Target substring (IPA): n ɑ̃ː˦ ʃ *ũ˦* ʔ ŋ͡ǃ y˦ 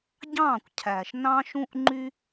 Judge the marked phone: correct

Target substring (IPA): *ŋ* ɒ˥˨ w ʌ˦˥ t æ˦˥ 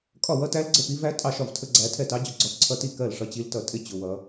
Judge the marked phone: incorrect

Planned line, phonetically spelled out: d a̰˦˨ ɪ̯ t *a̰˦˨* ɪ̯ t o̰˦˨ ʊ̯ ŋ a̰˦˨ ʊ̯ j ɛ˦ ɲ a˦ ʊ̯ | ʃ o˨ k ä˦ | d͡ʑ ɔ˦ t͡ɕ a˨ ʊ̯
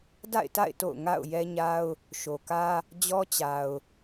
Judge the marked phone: correct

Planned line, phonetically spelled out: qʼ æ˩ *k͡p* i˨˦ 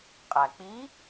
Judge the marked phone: correct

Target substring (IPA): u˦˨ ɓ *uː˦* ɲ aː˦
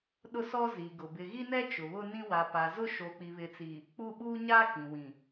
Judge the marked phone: correct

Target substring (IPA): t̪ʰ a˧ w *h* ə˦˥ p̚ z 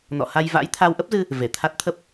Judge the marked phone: incorrect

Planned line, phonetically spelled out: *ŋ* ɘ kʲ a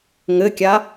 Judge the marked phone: correct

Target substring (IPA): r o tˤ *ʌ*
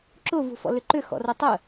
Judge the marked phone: incorrect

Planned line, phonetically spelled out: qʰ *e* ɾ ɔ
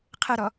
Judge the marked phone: incorrect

